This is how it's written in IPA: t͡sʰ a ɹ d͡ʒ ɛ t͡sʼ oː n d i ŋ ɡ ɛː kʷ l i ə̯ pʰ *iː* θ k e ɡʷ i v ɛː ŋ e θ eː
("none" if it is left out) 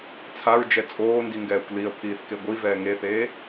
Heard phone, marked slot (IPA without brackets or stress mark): iː